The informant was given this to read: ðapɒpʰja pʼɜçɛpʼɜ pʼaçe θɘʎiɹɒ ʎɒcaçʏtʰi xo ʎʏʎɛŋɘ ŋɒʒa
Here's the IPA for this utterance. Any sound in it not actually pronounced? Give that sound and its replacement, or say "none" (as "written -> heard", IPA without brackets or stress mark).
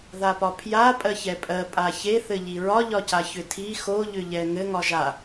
none